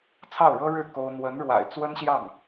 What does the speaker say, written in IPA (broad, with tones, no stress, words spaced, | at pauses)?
t͡sʰɑ˥˩ʊ̯ɻɤ˥ɻɻ̩˥˩ ko˥ʊ̯ n̪wə˧˥nɻwa̰˨˩ɪ̯ t͡swə˥nɕjɑ˥˩ŋ